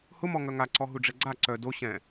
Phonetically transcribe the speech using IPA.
h ʊ m ɔ ŋ œ ŋ a ǀ ɔ ɦ u ɖ͡ʐ ɛ ɡ͡ǀ a ǀ œ d o ɕ ɛ̃

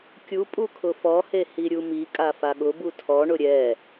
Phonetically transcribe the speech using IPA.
kʲ u pʼ u kʰ ʊ f ɔ h e h i ɾʲ u m i kʼ a f a ɠ ʊ b u tʰ ɔ ɳ ʊ ɾʲ ɛ

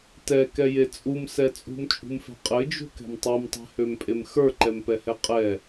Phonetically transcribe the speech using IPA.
t ɛ k ɛ j e t͡sʼ u m s ɛ t͡sʼ ṳ m t͡ʃʼ ṳ m f ɛ̤ qʼ ɘ d͡ʒ ṳ k ɛ̤ m tˤ e m tˤ ɛ̤ h ø m pʼ e m x ə˞ ǃ ɛ m p ɛ h ɛ qʼ ɛ

